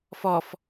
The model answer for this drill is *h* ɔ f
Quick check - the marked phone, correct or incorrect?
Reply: incorrect